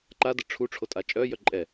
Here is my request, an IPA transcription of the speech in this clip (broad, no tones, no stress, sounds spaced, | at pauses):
ǃ a d ə ʈ͡ʂʰ u ʈ͡ʂʰ o tʼ a t͡ʃʼ œ j œ ǃʼ ɛ